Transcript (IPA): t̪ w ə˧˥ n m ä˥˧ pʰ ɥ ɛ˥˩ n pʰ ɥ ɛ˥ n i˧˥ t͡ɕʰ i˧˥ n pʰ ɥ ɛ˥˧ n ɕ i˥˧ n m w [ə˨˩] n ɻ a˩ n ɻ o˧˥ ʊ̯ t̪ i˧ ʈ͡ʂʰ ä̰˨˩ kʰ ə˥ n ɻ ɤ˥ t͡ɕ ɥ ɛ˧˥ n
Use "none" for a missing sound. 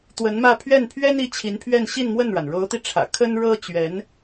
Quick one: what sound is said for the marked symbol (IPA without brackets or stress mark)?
ə˥˩